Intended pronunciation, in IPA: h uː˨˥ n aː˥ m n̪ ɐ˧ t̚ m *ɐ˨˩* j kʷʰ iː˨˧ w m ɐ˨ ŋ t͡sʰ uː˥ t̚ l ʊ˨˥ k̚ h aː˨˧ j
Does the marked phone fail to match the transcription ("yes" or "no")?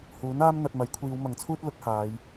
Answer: yes